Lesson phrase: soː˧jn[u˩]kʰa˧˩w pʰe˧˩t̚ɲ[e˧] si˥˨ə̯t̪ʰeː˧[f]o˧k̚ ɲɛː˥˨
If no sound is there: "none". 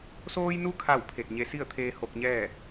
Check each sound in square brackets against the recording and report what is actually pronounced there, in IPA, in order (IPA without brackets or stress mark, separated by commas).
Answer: u˧, e˧, h